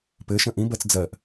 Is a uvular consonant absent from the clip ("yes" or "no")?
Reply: yes